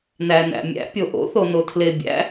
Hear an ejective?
no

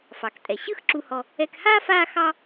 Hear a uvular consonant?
no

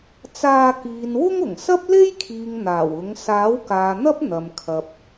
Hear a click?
no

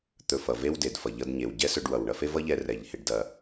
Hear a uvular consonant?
no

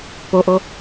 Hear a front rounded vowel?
no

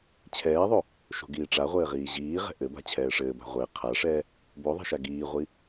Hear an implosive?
no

